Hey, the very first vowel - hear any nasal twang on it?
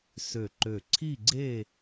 no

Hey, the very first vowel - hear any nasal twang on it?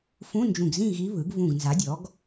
yes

